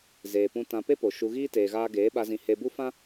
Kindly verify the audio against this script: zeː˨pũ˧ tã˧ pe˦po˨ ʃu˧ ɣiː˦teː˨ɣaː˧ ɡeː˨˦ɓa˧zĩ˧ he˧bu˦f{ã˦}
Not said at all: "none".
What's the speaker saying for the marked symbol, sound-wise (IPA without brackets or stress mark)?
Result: ã˦